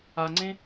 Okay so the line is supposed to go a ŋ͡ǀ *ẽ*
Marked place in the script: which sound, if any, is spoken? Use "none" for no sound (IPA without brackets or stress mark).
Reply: ẽ